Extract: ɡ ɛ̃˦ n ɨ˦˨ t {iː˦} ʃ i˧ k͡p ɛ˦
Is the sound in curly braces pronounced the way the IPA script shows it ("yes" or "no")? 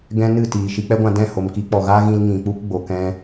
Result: no